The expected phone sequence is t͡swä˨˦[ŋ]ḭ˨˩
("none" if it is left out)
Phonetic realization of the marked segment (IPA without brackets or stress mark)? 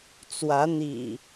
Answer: n̪